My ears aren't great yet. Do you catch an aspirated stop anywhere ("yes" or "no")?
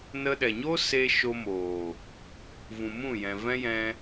no